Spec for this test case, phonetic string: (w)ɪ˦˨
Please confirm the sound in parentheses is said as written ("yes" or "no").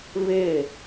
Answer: no